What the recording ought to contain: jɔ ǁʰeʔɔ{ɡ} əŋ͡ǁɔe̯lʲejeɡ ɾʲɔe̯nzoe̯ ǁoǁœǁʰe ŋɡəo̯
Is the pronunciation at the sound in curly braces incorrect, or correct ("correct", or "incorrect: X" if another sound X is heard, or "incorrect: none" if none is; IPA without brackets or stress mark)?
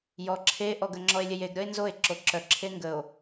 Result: correct